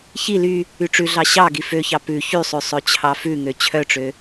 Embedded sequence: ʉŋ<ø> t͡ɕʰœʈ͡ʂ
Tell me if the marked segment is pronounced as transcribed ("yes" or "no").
yes